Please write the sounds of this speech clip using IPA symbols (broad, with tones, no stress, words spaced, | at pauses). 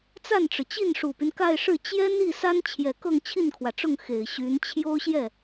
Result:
t͡sa˥˩nʈ͡ʂɻ̩˩t͡ɕi˥˩n ʂu˨˩py˦nka˥˧ɪ̯ʂɻ̩˥˩ t͡ɕjɛ˥n i˥˩sa˥n t͡ɕʰjɛ˨˩kɤ˥˧ŋ t͡ɕʰi˥˩nkʰwä˩ʈ͡ʂʊ˥˩ŋ xe˨˩ɪ̯ɕy˧˥n t͡ɕʰjo˥ʊ̯ɕjɛ˥˩